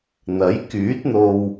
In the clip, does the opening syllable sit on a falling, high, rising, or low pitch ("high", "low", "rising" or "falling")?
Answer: rising